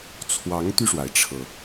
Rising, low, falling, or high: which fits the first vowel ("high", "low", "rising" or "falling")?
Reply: rising